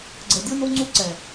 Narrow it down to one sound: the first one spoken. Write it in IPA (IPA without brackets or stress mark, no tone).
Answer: ɡ͡ǀ